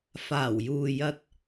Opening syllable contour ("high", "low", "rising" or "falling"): low